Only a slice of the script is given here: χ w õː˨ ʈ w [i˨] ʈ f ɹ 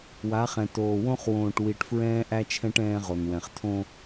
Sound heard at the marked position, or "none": i˨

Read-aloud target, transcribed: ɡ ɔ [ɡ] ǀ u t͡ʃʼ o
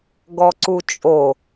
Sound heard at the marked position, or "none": none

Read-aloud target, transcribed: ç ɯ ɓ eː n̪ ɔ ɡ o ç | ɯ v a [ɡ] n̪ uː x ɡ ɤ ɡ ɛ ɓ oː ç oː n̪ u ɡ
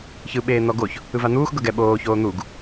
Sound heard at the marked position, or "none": none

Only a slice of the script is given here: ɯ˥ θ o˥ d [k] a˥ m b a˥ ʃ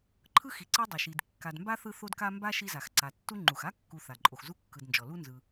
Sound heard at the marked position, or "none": k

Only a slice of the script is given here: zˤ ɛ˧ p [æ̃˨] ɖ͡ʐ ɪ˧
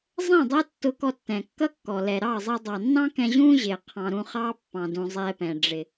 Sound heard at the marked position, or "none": ɛ̃˨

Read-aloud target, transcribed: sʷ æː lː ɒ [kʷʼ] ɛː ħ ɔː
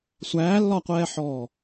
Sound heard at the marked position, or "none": qʷ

